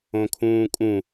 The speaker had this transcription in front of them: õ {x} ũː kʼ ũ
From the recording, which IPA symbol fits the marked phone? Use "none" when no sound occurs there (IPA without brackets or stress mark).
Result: kʰ